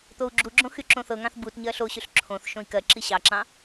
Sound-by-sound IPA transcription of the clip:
t̪ o u̯ ɡ͡ǁ u ɡ͡ǁ õ x y ǁ õ θ ɤ ŋ ɑ̃ θ b u t ɲ ɜ ɬ o ɕ y ɬ ǁʰ õ θ ʃ õ i̯ k ɜ ǁ i ɕ ɑ ǁ ɑ̃

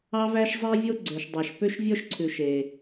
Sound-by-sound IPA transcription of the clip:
ɑ˦ v æ˦ ʃ zˤ e˦ vʲ o˦ ɡ͡ǀ ø˨ ʃ dˤ ɑ˨ ʃ p ø˦ ʃ vʲ ɔ˦ ʃ ǀʰ ʉ˨ ʃ e˦

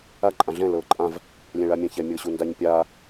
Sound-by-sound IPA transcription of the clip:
a ǃʼ ã ɮ ɛ̃ l ɤː ǃʼ ã v | lʲ ɛ̃ ɭ a mʲ ã ç ɛ mʲ ɤ ɕ u n d a ɲ pʲ a

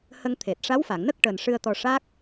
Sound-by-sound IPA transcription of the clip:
h ə˧ ŋ t̪ʰ e˨˩ t̚ ʂ a˧˥ w f a˨˩˨ ŋ n ə˦˥ k̚ ʈ əː˨˩ n ʂ ɨ˧ ə̯ t̪ ɔ˧ ʂ a˦˥ k̚

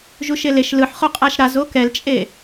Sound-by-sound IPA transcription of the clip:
ʒ u ʃ e l e ʃ l ɯ ħ χ o qʼ a ʃ ɾ a z o k ɛ l t͡ʃʼ e

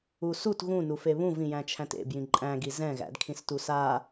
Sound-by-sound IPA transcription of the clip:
u s u t ɣ ũ n u f e β ũ v ĩ j æ̃ t͡ʃʰ æ̃ t ḛ b j ĩ ǃʼ æ̃ ɡ i z ɛ̃ ɣ æ̰ d kʰ ĩ s t u s a

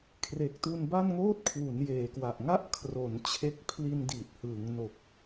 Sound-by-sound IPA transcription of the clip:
kʰ r e˨˩ k̚ t u˧ n b a˥˩ n ŋ oː˥˩ t̚ kʰ w u˩˦ n j eː˩˦ k w a˨˩ ʔ ŋ a˥˩ ʔ kʰ r o˩˦ n t͡ɕʰ e˦˥ k̚ pʰ l i˧ n d i˨˩ t̚ h ɯː˩˦ ŋ n o˨˩ k̚

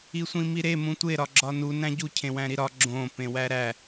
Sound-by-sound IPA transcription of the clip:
i sʷ ĩ m i ɾ e m ũ tʷ e ɾ ɒ ɡ͡ǁ ɒ n u n æ̃ ɟ u cʰ ẽ w æ̃ ɾ i ɾ ɒ ɡ͡ǁ õ p ẽ w æ ɾ æ

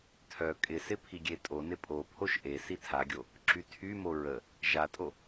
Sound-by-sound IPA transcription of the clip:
tʰ œ kʼ ɪ s ɪ pʰ i ɡʲ e tʼ o n ɪ pʼ o pʰ o ʃ ʔ e s i tʰ a ɡʲ o | ǁ y tʰ y m o ɹ ə | ʒ a tʼ o

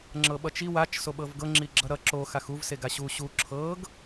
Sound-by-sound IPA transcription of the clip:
ŋ͡ǁ ɤ ɓ ʌ t͡ʃ i w a t͡ʃ s o ɓ ɤ v ɡ ɤ ŋ͡ǁ i ɡ͡ǁ ʌ ɾ ʌ ǁ o x a x u v s e ɡ a ɕ u ɕ u ǁʰ ɤ ɡ

